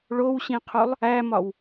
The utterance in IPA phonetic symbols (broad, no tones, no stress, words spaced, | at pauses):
ɭowɕĩqʰulˠ | æmɒw